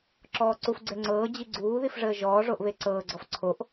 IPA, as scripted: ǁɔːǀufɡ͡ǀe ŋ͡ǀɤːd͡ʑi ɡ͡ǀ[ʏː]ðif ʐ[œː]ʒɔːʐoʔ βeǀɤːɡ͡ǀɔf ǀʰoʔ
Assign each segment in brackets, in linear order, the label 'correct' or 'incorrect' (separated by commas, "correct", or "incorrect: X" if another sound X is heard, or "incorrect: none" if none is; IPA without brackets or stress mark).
incorrect: uː, incorrect: əː